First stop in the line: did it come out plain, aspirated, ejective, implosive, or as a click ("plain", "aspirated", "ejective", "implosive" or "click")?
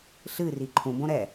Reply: click